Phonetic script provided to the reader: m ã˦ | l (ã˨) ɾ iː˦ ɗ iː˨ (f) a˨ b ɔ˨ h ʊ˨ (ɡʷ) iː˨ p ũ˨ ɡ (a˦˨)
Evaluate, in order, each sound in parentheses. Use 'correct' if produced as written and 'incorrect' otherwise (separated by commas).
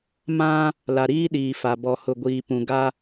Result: incorrect, correct, correct, incorrect